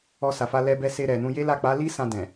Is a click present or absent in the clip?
absent